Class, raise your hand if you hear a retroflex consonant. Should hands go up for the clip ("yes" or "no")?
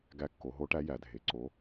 yes